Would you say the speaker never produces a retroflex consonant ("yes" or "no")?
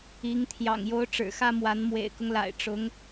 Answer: no